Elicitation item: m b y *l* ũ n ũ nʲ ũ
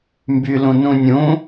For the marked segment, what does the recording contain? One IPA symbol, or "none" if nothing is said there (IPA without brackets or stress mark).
l